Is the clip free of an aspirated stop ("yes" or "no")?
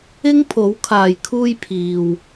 no